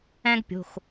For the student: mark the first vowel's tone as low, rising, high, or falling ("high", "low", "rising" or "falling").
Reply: high